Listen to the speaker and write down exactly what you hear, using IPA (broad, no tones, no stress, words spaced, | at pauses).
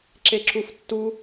ǁeǁuftːu